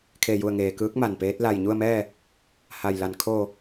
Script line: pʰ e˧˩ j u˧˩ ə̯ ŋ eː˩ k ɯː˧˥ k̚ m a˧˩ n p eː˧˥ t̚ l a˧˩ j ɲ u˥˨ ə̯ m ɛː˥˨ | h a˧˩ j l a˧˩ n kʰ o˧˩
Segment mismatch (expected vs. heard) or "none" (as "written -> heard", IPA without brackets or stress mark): pʰ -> kʰ